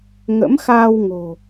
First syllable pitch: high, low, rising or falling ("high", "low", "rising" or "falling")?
rising